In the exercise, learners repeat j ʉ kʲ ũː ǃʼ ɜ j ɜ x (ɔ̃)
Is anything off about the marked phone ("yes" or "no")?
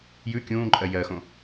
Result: yes